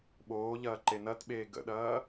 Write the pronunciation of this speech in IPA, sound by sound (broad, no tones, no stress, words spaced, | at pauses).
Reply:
ɓoːʎɐː ǃenɐtɓeː ɡə̰ɗɐː